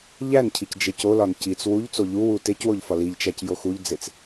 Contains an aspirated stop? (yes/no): yes